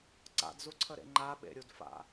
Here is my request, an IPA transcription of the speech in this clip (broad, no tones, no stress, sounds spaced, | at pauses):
ǀ a̰ d z u ǀʰ ə ɾ ḛ ŋ͡ǃ a ɓ ḛ ɾʲ u d f a̰